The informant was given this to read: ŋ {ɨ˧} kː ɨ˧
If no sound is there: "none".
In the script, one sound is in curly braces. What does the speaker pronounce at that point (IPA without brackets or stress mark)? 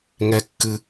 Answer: ɛ˧